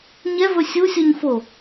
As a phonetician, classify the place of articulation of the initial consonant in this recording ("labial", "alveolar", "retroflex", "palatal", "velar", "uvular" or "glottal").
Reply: palatal